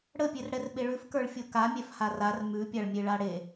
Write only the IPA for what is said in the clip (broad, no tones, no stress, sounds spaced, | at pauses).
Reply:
ɽ ə pʲ e r ɽ ɛ r ɓ e ɭ ʉ f k ə˞ ɭ fʲ o k a mʲ ɛ f h a r a r m ʉ pʲ a ɭ mʲ e ɭ a ɽ e